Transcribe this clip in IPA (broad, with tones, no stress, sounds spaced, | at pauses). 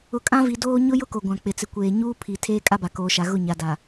ʊ˨ kʼ ã˦ v i˨ d oː˦ ɲ ʊ˦ j ʊ˦ k o˨ ɡʷ ã˨ k͡p ɪ˨ t͡s ɪ˨ kʷ eː˨ ɲ uː˦ pʰ i˨ tʰ eː˦ kʼ a˦ b a˨ k oː˨ ʃ a˨ ɣ ʊ˦˨ ɲ a˨ d a˨